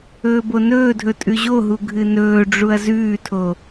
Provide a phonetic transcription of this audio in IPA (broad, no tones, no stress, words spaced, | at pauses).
ɵːbonɵːdʱɵ tʼʉʑoɦu ɡʱɨnɵːɖ͡ʐuɐ̯ zʉːtʰo